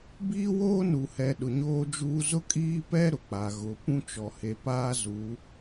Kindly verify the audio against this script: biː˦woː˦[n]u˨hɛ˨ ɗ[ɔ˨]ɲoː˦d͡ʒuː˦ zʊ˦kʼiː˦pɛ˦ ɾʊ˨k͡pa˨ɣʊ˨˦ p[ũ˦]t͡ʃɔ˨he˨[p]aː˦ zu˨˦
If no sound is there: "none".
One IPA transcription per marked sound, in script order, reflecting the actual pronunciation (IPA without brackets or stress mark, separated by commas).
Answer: n, ʊ˨, ũ˦, p